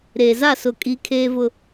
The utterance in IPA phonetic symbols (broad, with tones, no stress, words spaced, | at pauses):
ɾeː˨za˦˨ sʊ˦˨kʼi˦ kʰeː˦vʊ˦